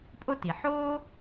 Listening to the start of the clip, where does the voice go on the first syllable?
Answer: high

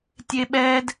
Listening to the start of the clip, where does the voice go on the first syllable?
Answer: high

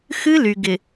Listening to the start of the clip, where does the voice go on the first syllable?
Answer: high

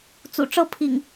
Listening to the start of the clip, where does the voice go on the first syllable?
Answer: low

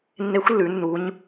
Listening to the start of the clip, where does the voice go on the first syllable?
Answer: rising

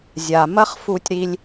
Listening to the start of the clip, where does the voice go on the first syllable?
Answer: low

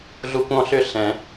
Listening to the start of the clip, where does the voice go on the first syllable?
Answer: high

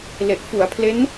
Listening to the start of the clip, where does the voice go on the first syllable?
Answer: low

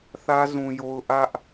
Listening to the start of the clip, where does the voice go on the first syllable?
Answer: high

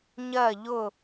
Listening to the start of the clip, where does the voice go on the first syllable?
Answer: falling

